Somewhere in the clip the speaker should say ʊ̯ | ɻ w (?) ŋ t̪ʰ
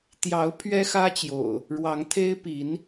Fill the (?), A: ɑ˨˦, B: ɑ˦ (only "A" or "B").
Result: A